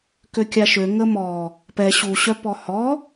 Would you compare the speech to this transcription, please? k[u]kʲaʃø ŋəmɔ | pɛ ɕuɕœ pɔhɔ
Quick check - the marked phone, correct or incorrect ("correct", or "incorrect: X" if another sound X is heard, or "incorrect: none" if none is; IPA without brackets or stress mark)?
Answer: incorrect: ø